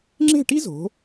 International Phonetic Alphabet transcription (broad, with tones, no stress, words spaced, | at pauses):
ŋ͡ǁe̤˥˧ʈi˥zo̤˩˧